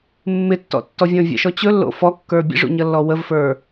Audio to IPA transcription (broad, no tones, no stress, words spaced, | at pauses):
mːɪtːɔ̰tːɔvʲɔ̃ vʲə̰ʃɔ t͡ɕɵlːo̰ fɔkːə˞ bʲə̰ʐṵɲʌlːɔ wəvfə˞